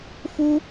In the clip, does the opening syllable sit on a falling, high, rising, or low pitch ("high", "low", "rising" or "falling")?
high